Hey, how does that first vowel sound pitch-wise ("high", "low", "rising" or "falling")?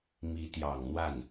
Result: rising